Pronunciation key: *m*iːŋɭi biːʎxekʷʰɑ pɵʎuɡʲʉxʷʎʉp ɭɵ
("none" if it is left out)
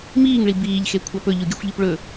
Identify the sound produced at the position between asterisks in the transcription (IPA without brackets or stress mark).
m